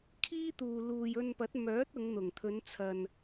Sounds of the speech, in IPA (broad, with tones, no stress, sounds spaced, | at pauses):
kʰ iː˥ t̪ uː˨ l uː˨ j ɵ˧ n p ɐ˨˥ t̚ m œː˨˥ t̚ ʊ˨˧ ŋ n̪ ʊ˨˩ ŋ t̪ʰ ɵ˨˧ n t͡sʰ ɐ˨ n